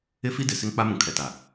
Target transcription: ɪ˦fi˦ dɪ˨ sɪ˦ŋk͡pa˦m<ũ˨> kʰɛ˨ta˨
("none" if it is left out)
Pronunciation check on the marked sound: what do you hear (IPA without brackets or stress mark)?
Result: ũ˨